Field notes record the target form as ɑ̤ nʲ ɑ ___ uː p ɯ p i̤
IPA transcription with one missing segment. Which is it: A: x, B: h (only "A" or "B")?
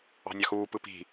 A